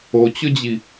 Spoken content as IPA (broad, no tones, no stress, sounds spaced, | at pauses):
o t͡ɕ ʊ d͡ʑ i